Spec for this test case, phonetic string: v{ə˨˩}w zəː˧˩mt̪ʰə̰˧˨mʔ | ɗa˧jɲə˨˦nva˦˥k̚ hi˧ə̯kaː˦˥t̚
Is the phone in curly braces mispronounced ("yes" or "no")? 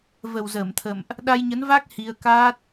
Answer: no